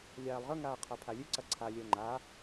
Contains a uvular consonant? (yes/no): yes